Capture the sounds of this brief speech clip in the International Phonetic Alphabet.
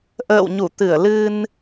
ʔə̰ː˧˨wɲu˧˩t̪ɨ˧˩ə̯ lɨ˧n

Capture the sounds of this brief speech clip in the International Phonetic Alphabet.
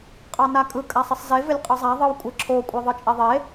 qʼɑnakʼɯ kʼasˤɪsˤze vɪlʲqʼɯzˤa ðˤɯwkʷʼɪ ǁʰo kʷʼeðˤɯt͡ʃʼeðˤe

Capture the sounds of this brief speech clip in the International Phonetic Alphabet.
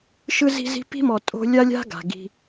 ʃɯ˦zi̤˦zi̤˦ pi̤˦mɔ˨ tʼo̤˦ lʲa˦lʲa̤˦ɡa̤˨ ɡi̤˦

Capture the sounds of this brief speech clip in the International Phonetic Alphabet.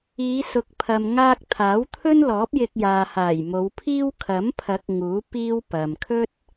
iː˨˧sʊ˨k̚ pʰɐ˨m ŋaː˧k̚ t̪ʰaː˨˥wt̪ʰɵ˥nlɔː˨˥p̚ jɪ˧k̚jaː˨ haː˨˩jmo˨˧wpʰiː˥w kʰɐ˨˥mpʰɐ˨˥k̚ ŋuː˨˥ piː˥wpɐ˨m kʰɵ˥t̚

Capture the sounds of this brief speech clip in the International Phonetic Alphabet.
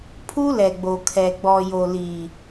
pʰu˦lɛ˨ ɡ͡bo˨kʰɛ˨ ɡ͡bɔ˨jo˨li˨

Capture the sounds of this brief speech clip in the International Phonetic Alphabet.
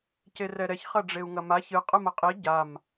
cerɛɾɛç χɐɖ͡ʐeu̯ŋɐmaç ɨ qʼɨmɐqʼi ɟam

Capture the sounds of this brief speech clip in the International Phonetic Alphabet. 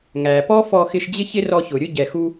ŋæ˩pɔ˥fɔ˧xɪ˧ʃ d͡ʑɪ˥çɪ˥rɔ˧ çʊ˩ ɾʲʊ˥ɟɛ˩ xu˧

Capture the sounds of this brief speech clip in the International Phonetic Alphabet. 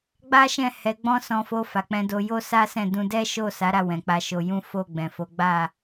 ɡ͡ba˦ʃɛ̃˦˨ hɛ˧ɡ͡bɔ̃˦ sɔ̃˧fo˧ fa˨k͡pɛ̃˧do˧ jo˦sa˦sɛ̃˦˨dũ˧ dɛ˦ʃo˦˨sa˨˦ ɾa˦˨wɛ̃˨k͡pa˧ ʃo˧jũ˦ fo˦˨ɡ͡bɛ̃˨fo˨˦ ɡ͡ba˦˨

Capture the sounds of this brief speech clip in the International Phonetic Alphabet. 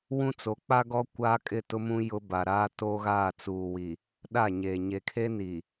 wũ˦t͡so˨˦k͡pa˦ɡɔ˦ kʷaː˦kʼɪ˦˨tʊ˦mũ˦ jʊ˦ ba˨ɾaː˦toː˦ɣaː˦˨ t͡suː˨wi˨ | ɗa˦˨ɲeː˨ ɲe˨kʰe˦ni˨

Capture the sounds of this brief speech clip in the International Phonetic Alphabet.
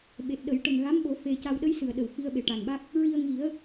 ɓe˨˩t̚ɗə˨˩˦j ʈə˨˩ŋɣa˧˥mɓo˨˩˦ fe˧ ca˧w ɗə˧˥jsɨ˨˩˨ə̯ ɗə˨˩w fi˧ə̯ɓe˨˩ʈa˨˩nɓa˦˥k̚ | ɹi˧ə̯ŋi˨˩˦ə̯

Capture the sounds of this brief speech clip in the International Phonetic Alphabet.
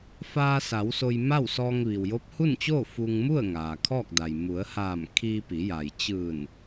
faː˧sa˩˧w so˧jma˥˨wsɔː˧ŋ ʋi˩wjo˧˥p̚hu˥˨nt͡ɕoː˥˨ fu˧ŋ mu˥˨ə̯ ŋaː˩kʰɔː˥˨k̚da˩j mu˩˧ə̯haː˧˩m kʰiː˧pi˩˧ja˩j t͡ɕɯː˧˩n

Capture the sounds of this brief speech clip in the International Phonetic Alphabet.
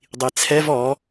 dˤit͡sʰɛv ɔ

